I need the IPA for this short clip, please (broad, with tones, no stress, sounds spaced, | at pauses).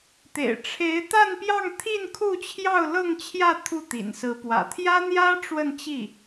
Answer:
t̪ ḛ˨˩ ɪ̯ ʈ͡ʂʰ e˧˥ ɪ̯ t̪ a˥˧ n p j ɑ˥˧ ŋ t̪ʰ i˥˧ n kʰ u˥˧ t͡ɕʰ j ɑ˥˧ ʊ̯ l ɤ˥˧ ŋ t͡ɕʰ j ä˥˧ t̪ʰ u˥˩ t̪ ḭ˨˩ n s ɹ̩˧˥ p w ä̰˨˩ t̪ʰ j ä˥ n̪ j ä˥ ʈ͡ʂ w ə˥˧ n t͡ɕ i˥˩